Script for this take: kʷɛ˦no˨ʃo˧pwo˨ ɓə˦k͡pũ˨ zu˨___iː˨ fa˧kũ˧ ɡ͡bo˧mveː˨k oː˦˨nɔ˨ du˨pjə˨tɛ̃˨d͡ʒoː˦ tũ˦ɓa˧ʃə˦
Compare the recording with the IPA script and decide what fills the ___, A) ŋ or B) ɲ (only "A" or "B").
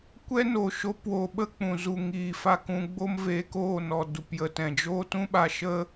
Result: A